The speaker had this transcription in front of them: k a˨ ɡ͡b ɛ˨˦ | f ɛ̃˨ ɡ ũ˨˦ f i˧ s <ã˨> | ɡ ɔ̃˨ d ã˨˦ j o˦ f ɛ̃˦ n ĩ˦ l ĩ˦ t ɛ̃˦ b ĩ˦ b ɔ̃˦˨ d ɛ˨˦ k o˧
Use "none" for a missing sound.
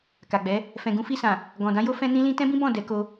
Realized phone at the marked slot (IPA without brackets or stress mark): ã˨